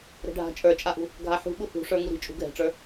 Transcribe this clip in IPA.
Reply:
ɾɛ̤ɖʱa̤ t͡ʃʼə˞t͡ʃʼaʔṳ | ɡʱaħṳ ɓuhṳʂə˞ ŋuɾi̤t͡ʃʼṳ ɡʱɛ̤ʈ͡ʂə˞

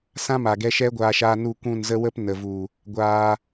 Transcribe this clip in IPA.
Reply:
sã˦ma˨ɡɛ˧ ʃɛ˦ ɡʷaː˧ʃaː˧ nu˦˨kʷũ˦˨nzə˦ wə˦p nə˨vu˨ | ɡʷaː˧

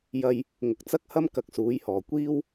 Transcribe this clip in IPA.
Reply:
jɐ˧j | ŋʊ˨k̚t͡sɐ˥k̚hɐ˥m kɐ˨˥k̚suː˨˥jhɔː˨˩ kʷiː˥w

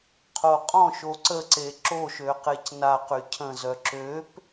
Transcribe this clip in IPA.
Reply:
qʰoqʼɔ̃ʃo ǀəǀe ǁoʃø qecnaqy cʰə̃zœ ǁøp

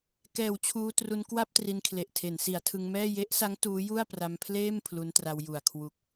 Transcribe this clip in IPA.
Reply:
kɛː˩˦w t͡ɕʰuː˧tru˧n kwa˥˩p̚ tri˧nkʰle˨˩ʔ tʰe˩˦nsi˩˦a̯tʰɯ˧ŋmɛː˥˩ je˦˥ʔsa˦˥ŋ tuː˦˥ju˥˩a̯pra˧mpʰleː˥˩m pʰlu˦˥ntra˧wju˨˩a̯ kʰwu˨˩k̚

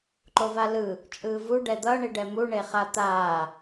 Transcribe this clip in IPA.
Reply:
ǃovalɯ | t͡ʃʼɯːvu ɖɛd̪ʌ ɳiɖɛmu ɳeχat̪aː

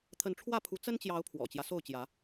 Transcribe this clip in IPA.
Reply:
t̪ʰə˨˦nʈ͡ʂʰwä˥˨pʰu˨˦ t͡sə˦nt͡ɕjɑ˨˦ʊ̯ pʰwɔ̰˨˩t͡ɕjä˦ so˥˨ʊ̯t͡ɕjä˨˦

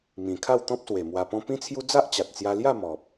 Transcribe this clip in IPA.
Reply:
mĩ˨˩kʰa˥˧wt̪ɔ̃˦p̚swe˨˩ mwa˧pɔ̃˦ pĩ˦t͡sʰju˦ d͡za˦ʔt͡ɕa˨t̚t͡sja˧ lja˥˧ mɔ˨p̚

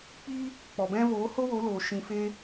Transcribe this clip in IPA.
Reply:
k͡piː˦ | k͡pɔ˨bɛ̃˧voː˨˦ ho˦wo˨˦loː˨ ʃĩ˧fe˦

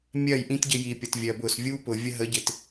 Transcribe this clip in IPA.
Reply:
mʲɜ˦˨jʔĩ˦tɟɪ˧ji˨ pʲʌ˨tvʲɜ˨bʊ˦˨s vʲu˦pʊ˨ vʲə˧ɦə˨˦ɟɪ˨t

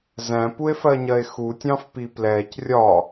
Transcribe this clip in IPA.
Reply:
zæ̃pue̯fɜɲɜe̯ xutʲɑ̃fpi plɛːc rʲɒ

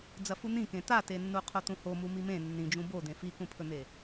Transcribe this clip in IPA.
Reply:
d͡zɐfun̪ĩkẽ t̪atenːu qʰot̪ũho mumimẽ nːĩd͡ʒũ bod̪ẽ fikũpʰɵn̪e

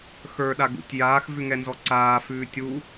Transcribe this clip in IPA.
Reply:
xə˞ɗaɡṵtʲ jaːxvʉŋɛnzɔ ǀaːfʉː tʲu

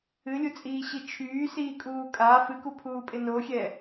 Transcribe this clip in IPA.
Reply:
ɨlʲut͡sʼiːɕi t͡ʃʰyːsiːkʼuː kʼa fɨkupʰuːpʼɪ noxʲɛ

